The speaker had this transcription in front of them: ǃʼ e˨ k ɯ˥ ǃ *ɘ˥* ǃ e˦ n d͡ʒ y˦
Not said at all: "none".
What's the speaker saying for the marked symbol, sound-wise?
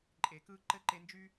ɘ˥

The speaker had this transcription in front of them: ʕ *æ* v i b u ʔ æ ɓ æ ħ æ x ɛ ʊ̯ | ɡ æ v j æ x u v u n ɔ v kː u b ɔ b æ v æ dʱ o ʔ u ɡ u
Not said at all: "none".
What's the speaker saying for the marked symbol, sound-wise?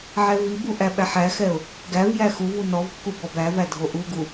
ɛ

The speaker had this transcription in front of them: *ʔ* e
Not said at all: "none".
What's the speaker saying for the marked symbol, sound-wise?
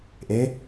ʔ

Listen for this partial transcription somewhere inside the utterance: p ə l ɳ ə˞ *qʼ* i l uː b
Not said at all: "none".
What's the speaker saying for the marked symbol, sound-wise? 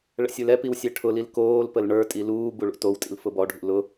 tʼ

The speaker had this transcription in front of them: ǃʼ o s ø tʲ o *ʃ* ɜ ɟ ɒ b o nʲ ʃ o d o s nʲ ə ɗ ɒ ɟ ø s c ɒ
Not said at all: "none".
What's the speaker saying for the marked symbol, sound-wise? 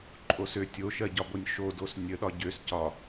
ʃ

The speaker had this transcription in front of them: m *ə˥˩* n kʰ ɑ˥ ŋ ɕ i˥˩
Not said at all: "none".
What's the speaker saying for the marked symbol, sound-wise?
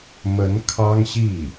ə˧˥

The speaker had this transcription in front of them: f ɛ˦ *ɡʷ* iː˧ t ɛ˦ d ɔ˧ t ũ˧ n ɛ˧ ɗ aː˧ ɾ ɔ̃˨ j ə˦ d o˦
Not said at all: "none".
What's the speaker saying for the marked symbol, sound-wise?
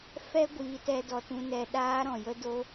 ɡʷ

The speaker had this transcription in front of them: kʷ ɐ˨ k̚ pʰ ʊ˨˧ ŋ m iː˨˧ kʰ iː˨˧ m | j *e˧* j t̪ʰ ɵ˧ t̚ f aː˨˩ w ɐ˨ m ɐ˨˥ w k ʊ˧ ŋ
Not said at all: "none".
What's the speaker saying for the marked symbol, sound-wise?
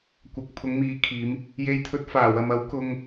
e˧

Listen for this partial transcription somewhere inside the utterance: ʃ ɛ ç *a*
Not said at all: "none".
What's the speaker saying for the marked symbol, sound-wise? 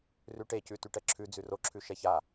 a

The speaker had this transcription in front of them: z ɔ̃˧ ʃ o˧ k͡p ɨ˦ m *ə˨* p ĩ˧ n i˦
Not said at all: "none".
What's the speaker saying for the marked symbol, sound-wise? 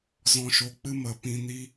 ə˨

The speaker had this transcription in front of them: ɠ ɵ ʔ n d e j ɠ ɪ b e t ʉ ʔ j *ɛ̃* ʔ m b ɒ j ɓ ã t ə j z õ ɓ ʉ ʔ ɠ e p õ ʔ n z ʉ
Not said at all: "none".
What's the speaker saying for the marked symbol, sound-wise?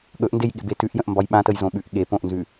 ə̃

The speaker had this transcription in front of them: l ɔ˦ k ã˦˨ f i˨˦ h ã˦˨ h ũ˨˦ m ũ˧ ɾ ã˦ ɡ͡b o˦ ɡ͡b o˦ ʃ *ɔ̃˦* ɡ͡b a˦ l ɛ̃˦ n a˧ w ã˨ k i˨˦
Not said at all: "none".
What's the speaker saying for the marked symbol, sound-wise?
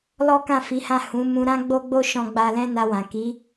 ɔ̃˦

